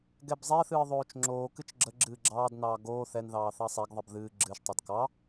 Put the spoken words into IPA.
ɡɛbzˤɛθɨː ðˤoːt͡ʃŋ͡ǁoːkɨt͡ʃ ɡ͡ǁəɡ͡ǁɨː ɡ͡ǁɑːdnɑː ɡoː θɛn ðɑːθɑsˤɛɡðˤəb ðɨː ɡ͡ǁɨːʃtˤɑd kɑ

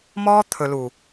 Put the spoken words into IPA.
mɔː˦ t̪ʰɵ˨lu˨

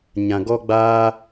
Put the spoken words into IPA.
ɲã˨ɡɔ˦ ɡ͡baː˦

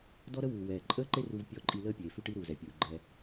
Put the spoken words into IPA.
dɔ˦ɾə˦wuː˨ wɛː˨ǃʼəː˦ǃe˦ru˧v pʲɔ˦˨ǃʼi˧ləː˦ pʲeː˨fʉ˦ʈi˦ ɾuː˨zɛ˨pʲuː˨ɡ͡ǃɛː˧

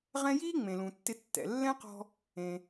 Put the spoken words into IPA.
ʁɛ̃˥ jiː˥ ŋ͡mẽ˩lũ˩tːɪ˧ tːɛ̰˩ lːɛ̃˥qɔ̤˧ | ẽ˩

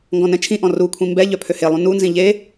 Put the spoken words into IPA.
ŋɡɔ̃nɛ̃t͡ʃʰĩʔɔ̃ rukʷʰĩ mbɛ ʎœpʰøhelˠũ nunzĩ ʎe

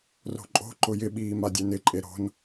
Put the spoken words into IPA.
ro̤ǃʼo̤ ǃʊjɪ ɓiːmadʲɛnɪ ǃʼeɾo̤n

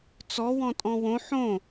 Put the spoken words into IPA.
t͡sɔwɔ̃ tʼɔ̃wõ ħõ

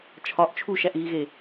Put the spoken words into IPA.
t͡ʃʰɒʔ t͡ʃʰuʃæʔɣiɣe

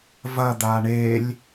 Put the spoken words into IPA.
vɐd̪a ɳelʲ

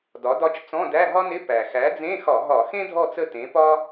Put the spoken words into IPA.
dɒ˩˥dɒ˦˨t͡ʃ t͡sɔ̃˧˥˧dæ˧˥˧ɦɒ˥nɪ˧˥˧ pæ˩ xæ˩˥d͡zẽ˧˥˧xɒ˧˩˧ɦɒ˧˩˧ xẽ˥dʱɔ˦˨t͡sə˦˨ tẽ˩˥pɒ˥

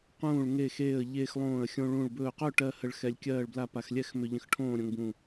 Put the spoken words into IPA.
qũː˧˩ɭŋe˧˩xeː˧˩ə̯ ʎeː˧xlˠõː˧˩ə̯xʲõ˧ɭũ˧˩ɭ bɵː˧˩qɵ˥˨ʈɜ˧ hə˧˩ɭ xɛ˧lʲkʲɜː˥˨ɭbla˥˨pa˧x lʲɛ˥˨x mʏ˧ʎə̃˧xʈʰõː˥˨ɾʲõ˧ŋ bũ˧˩

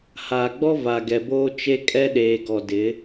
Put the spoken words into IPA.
haː˨ɡ͡bɔ˦ va˨ɡɛ˨boː˦ t͡ʃe˦kʼɛ˦ ɗeː˨ɡɔ˨dɪ˨˦

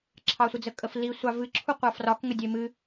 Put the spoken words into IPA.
ǁʰɑsʷəd͡zəkʼəf li sʷɑvɨ ǁʰuqʷɑfrɒk ŋədʲemɨ

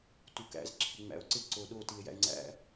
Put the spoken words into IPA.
tukæ̰z ǁʰɪŋ͡mæ̰o̯ǀɪ ǀoɗo tie̯jæ̰e̯ŋ͡ǀæ̰

